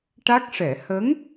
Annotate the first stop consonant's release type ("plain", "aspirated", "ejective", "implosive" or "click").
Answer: plain